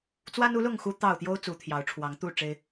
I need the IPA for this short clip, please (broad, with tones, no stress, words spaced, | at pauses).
t͡swa˦nu˨˦lʊ˥˨ŋ xu˦t̪ɑ˥˨ʊ̯ t̪jo˦ʊ̯ t͡su˨˦t̪ʰjɑ˨˦ʊ̯ʈ͡ʂʰwɑ˨˦ŋt̪u˥˨ ʈ͡ʂe˦ɪ̯